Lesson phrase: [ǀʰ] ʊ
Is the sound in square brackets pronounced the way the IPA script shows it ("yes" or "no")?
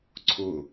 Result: yes